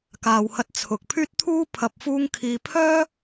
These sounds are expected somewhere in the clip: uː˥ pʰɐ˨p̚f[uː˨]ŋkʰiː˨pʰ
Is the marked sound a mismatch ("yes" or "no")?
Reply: yes